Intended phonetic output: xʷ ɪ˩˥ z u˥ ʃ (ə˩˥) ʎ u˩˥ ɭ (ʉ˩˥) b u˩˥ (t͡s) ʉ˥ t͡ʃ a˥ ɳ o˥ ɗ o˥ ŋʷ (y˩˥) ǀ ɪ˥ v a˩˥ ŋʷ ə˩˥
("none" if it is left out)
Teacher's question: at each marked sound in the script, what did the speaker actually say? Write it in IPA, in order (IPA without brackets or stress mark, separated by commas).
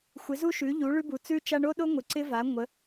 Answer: ʉ˩˥, ʉ˥, t͡s, ɪ˩˥